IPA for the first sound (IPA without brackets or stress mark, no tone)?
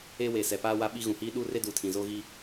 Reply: e